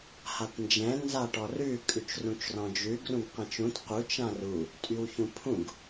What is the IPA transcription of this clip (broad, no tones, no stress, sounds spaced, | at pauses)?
h a t n d͡ʒ ɛ̃ n z a ʈ ɔ r ʉ kʼ ʉ t͡ʃ r ũ t͡ʃ r ɔ̃ d͡ʒ ʉ ɡ r ũ ɡ q ɛ̃ t͡ʃ ũ t q u t͡ʃ ã r u | tʼ y w ç ũ pʰ ũ ɡ